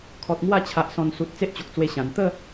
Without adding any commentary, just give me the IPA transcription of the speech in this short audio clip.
kʰ ɔ˨ t̚ ŋ w a˥˧ t͡ɕʰ a˨ ʔ s ɔ̃˨˩ n s u˨ t̚ t͡s e˦ ʔ t͡ɕ o˨ k̚ t͡s w e˧ ɕ ã˨˩ n t̪ ə˥˧

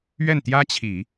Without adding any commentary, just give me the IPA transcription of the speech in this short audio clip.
ɥ ɛ˥˩ n t̪ j ä˥ t͡ɕʰ i˨˩˦

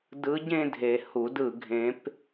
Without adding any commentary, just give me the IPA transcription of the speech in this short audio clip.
d ɯ˧˥ ɟ ẽ˥˧ dʱ e˨ h u˨˩˦ d ɯ˨˩˦ ɡʱ ẽ˧˥ p

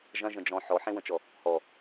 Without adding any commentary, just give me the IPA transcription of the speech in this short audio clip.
ʒ ɐ̃ ʒ ə̃ d͡ʒ ɔ̃ ħ ɔ ħ ẽ w ə̃ t͡ʃ ɔ | h ɔ

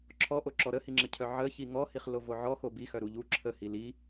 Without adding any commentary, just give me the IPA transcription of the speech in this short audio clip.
ǁʰ ɔ ʔ o ǁ ɔ ɾ ə h i ŋ͡ǁ ə cʰ œ ʕ ə ç i ŋ ɔ h i χ l o v o ʕ ɔ x o b i x œ ɾ u ʎ u ǁʰ ə h i l i

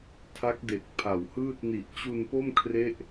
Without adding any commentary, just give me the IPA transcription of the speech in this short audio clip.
tʰ a˦˥ k̚ d e˨˩ k̚ pʰ a˨˩ w h ɯː˥˩ t̚ n i˨˩ ʔ t͡ɕ u˧ n p o˥˩ m kʰ r e˥˩ ʔ

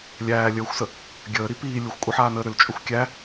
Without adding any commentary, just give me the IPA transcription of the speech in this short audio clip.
lʲ æː lʲ əː xʷ s ə | ɡʲ əː ɾ i p iː lʲ u xʷ kʷʼ ə ħ aː n əː ɾ ʏ l t͡ʃʼ ʏ xʷ kʲ æ

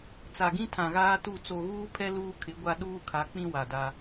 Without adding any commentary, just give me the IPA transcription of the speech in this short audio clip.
t͡s a˨ ɡ ĩ˦ tʰ ã˨ ɣ aː˦ t u˦˨ t͡s o˨ ɣ uː˦ pʰ ɛ˦ l uː˦ kʰ ɪ˨˦ ɡʷ a˦ ɗ uː˦ kʰ a˨˦ k͡p ĩ˦ w a˨ d a˦

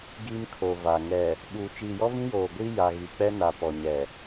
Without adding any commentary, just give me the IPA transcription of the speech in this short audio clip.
ɡ i˦ m kʰ o˨ v a˨ ŋ ɛ˨ | ɓ uː˨ t͡ʃ iː˨ j ɔ˦ v ĩ˦ j oː˨ ɡʷ i˦ j a˨ ɣ i˨ k͡p ɛ˦ n a˨ p ɔ˨ ɲ ɛ˨

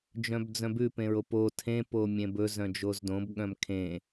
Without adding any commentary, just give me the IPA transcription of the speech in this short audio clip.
d͡ʒ œ̃ b d͡z œ̃ b ʉ p ẽ ɹ o p o tʰ ẽ p o mʲ ẽ b ɵ z œ̃ d͡ʒ o z d õ b ɠ œ̃ m kʰ ẽ

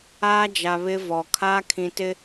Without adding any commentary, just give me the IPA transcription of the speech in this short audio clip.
aː˦ d͡ʒ a˨ β ɪ˦ v ɔ˨ kʰ aː˦ kʰ ĩ˨ t ɪ˦

